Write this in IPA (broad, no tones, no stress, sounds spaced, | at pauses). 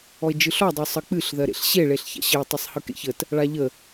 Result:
ɔ e̯ d͡ʒ ɯ ɬ ɔ dˤ u sˤ ə k͡p ɨ ɬ ð ɜ ɾ ḛ ɬ ɕ e ɭ e ɬ ç a̰ ɕ ə e̯ tˤ ɪ sˤ h ɯ k ḛ ç ə t | ɭ a ʎ ə